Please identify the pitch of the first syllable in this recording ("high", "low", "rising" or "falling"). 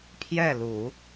falling